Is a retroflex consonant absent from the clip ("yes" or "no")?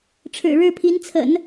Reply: no